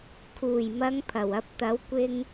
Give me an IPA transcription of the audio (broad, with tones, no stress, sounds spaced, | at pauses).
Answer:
kʰ uː˨˩ j m ɐ˨˧ ŋ pʰ ɐ˨˩ w ɐ˧ p̚ t̪ ɐ˨˥ w kʷ ɪ˥ ŋ